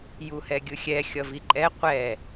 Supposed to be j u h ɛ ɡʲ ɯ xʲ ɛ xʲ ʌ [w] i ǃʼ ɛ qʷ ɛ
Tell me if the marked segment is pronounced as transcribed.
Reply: no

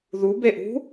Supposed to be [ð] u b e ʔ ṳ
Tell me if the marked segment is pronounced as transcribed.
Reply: yes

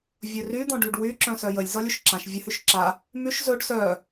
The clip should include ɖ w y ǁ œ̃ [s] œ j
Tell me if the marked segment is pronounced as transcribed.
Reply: yes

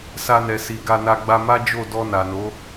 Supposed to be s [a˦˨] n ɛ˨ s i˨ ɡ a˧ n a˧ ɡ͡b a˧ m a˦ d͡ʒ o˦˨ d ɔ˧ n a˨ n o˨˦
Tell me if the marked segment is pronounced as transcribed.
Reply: no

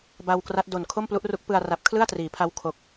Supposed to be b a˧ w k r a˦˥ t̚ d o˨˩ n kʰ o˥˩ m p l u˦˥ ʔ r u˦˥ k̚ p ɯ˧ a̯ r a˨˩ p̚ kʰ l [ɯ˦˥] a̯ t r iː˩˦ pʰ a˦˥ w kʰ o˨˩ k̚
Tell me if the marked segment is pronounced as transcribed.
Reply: no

